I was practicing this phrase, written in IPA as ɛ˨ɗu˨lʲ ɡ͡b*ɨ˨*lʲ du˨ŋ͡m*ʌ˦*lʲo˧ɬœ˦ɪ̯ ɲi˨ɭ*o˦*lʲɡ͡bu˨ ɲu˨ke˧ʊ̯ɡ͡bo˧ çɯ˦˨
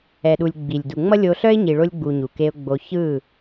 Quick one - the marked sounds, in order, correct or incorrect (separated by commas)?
incorrect, correct, incorrect